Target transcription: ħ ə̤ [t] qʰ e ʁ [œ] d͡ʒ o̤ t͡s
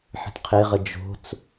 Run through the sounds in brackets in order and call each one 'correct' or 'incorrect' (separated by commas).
correct, incorrect